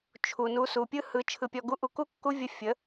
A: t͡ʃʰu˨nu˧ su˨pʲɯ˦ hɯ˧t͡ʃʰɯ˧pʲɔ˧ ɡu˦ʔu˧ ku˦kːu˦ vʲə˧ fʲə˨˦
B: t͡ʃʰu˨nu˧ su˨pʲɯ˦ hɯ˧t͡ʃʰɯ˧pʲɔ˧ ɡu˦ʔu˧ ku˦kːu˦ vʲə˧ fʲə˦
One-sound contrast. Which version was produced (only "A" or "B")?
A